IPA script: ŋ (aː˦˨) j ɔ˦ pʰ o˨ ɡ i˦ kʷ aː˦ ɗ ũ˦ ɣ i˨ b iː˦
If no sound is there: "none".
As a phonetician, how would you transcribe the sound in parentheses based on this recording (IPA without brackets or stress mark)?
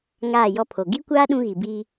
aː˦˨